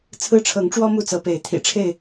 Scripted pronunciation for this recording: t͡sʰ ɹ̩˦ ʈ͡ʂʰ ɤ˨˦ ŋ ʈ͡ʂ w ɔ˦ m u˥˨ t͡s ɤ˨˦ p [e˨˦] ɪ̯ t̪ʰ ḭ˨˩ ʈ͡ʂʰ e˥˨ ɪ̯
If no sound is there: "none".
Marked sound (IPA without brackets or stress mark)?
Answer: e˨˦